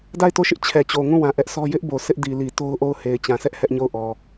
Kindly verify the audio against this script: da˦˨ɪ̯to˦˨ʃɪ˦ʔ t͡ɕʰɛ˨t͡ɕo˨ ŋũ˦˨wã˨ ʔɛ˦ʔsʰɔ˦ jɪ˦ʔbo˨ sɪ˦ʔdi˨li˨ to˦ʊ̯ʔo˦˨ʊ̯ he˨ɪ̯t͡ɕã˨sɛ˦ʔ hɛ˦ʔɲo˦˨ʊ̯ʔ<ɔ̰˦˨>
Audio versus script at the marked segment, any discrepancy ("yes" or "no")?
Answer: yes